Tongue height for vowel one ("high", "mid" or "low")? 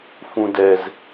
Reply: high